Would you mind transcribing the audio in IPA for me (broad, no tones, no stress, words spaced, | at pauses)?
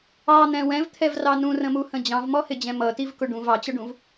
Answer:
ɑn̪ɛ̃ wɛ̃vt̪ʰɛvrɑ nũrə̃muhə̃ d͡ʑɑ̃vmɔhɪd͡ʑɛ̃ mʌtivkʊ ɖũv ɑt͡ɕʌɖũv